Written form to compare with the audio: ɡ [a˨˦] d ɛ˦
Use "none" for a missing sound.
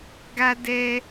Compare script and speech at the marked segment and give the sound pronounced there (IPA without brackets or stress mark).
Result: a˦